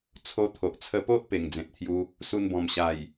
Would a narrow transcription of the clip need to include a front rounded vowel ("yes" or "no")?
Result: no